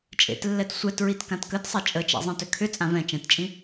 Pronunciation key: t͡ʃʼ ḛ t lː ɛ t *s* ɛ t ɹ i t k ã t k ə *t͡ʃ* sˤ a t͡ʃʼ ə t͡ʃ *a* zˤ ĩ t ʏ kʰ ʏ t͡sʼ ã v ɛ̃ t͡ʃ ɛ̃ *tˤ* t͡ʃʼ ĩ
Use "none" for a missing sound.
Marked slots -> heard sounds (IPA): sʷ, t, a̰, t

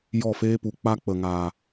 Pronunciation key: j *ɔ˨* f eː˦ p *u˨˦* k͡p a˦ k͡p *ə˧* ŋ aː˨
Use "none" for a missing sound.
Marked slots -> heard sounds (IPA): ɔ˦˨, u˨˦, ə˨

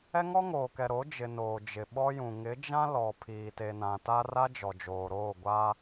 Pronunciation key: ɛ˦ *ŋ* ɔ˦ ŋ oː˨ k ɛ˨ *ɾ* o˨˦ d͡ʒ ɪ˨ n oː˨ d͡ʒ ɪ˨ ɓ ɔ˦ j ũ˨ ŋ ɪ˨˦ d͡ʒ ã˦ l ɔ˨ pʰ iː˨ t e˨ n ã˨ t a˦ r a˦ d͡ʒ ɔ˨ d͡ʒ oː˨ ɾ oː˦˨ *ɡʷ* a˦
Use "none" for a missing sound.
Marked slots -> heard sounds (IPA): ŋ, ɾ, ɡʷ

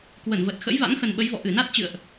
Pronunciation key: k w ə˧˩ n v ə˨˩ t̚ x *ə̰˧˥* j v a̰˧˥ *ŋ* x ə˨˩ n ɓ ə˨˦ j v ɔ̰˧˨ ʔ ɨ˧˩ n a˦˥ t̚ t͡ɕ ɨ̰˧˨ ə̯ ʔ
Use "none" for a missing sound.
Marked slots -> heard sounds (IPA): ə̰˧˥, ŋ

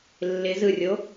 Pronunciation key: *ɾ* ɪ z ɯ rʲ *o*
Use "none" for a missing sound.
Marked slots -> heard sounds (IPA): lː, o

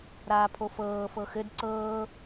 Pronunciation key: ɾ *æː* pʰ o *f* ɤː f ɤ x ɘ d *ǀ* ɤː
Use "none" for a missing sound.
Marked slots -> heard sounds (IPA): aː, f, ǀ

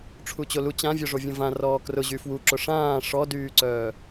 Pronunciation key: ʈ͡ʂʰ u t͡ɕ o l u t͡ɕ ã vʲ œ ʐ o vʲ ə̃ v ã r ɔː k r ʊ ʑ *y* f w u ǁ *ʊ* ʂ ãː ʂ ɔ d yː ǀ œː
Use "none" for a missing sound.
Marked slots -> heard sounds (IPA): y, ʊ

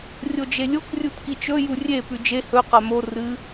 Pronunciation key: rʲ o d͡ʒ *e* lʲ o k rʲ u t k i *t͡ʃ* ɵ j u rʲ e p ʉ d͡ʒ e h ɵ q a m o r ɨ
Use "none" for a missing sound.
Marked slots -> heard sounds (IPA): e, t͡ʃ

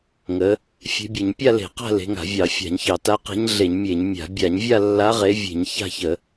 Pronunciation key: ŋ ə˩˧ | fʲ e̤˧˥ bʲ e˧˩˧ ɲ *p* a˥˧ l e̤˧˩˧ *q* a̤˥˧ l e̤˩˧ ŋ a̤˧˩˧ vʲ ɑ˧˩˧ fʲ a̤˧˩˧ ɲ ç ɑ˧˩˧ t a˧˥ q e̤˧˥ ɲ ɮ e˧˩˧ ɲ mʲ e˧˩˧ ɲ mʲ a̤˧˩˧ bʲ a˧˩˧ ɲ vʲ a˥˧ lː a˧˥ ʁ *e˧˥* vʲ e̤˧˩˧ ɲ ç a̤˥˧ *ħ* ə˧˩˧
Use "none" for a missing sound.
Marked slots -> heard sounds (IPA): pʲ, q, e˧˥, ç

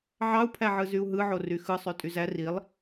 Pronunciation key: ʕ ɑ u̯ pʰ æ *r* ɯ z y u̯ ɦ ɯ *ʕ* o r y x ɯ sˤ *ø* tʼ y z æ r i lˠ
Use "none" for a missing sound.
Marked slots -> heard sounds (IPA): ʕ, ʕ, ø

